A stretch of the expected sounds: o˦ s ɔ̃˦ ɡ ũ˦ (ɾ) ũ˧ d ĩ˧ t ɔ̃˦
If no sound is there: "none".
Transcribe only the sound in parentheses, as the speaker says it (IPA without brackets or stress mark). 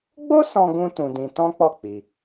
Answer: t